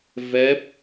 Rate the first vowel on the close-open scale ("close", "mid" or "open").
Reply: mid